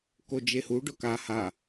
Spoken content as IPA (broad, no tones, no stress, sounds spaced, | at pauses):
k o d͡ʒ e h u ɖ ʊ k a h a